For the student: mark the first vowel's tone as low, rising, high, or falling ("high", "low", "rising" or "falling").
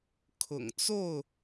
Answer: low